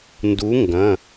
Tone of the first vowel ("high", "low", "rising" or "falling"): rising